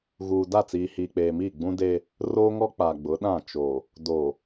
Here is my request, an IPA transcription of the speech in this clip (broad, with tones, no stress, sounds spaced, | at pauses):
ɣ uː˨ d a˦˨ t͡s iː˨ h iː˨ k͡p eː˨ m iː˦˨ ɡ͡b ũ˦ d eː˦ | r oː˦ ŋ ɔ˦ k͡p a˨ ɡ͡b ʊ˨˦ ɗ ã˦˨ t͡ʃ oː˨ | d oː˨